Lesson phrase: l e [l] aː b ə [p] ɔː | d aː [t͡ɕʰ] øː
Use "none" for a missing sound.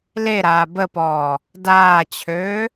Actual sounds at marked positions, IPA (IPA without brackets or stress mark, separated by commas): ɾ, p, t͡ɕʰ